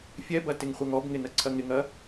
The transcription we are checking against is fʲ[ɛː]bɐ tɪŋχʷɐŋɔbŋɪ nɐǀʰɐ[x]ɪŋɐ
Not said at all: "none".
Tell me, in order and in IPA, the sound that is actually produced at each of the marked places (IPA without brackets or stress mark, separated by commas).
ɛ, ŋ